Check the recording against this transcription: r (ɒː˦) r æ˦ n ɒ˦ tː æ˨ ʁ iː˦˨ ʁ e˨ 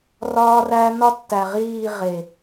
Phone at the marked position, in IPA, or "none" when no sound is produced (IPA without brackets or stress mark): ɒː˦